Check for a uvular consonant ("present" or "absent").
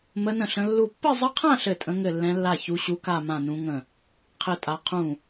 present